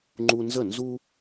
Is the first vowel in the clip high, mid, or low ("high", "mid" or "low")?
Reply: high